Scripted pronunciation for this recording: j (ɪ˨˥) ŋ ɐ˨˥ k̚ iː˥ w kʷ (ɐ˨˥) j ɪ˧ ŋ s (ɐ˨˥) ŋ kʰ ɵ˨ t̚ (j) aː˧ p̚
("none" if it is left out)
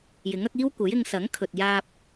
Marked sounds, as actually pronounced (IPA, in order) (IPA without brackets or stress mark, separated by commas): ɪ˨˥, ɐ˨˥, ɐ˨˥, j